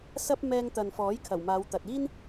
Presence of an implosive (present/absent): absent